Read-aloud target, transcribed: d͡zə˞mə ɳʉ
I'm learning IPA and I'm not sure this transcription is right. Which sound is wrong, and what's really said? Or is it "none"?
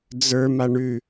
ə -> a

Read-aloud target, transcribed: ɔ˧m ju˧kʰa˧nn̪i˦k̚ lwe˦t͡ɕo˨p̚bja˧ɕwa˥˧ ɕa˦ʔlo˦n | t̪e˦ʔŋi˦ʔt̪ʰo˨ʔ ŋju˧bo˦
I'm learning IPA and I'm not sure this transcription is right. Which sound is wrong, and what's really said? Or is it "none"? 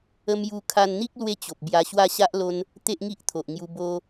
ɔ˧ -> ə˧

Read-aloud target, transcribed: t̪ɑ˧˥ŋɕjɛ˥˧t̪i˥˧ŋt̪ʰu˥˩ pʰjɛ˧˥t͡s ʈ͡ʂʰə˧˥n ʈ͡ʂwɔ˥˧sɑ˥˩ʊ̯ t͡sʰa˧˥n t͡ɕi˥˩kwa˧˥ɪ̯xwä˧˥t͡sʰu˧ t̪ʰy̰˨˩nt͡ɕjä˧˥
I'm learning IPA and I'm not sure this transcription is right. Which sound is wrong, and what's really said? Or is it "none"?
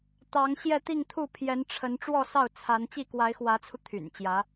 t͡s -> n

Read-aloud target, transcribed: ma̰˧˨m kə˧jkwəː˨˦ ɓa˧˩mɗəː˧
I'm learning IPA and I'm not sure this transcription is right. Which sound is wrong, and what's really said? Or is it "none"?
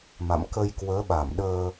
none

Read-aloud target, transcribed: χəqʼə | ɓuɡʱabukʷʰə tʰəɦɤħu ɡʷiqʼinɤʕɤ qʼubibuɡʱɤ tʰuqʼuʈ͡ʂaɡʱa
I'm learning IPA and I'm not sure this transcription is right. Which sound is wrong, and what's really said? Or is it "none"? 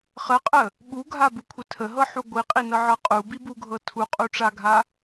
none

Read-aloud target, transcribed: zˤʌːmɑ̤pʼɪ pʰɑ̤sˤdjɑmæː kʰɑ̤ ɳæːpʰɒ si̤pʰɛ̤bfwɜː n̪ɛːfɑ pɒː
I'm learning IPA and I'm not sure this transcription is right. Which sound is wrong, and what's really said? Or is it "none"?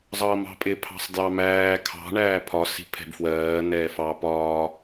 none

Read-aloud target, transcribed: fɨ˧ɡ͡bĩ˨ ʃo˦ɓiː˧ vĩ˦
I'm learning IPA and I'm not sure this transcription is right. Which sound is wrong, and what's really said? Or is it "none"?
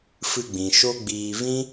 ɓ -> ɡ͡b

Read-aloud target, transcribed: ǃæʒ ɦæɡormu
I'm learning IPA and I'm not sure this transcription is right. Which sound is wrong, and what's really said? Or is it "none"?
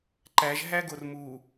none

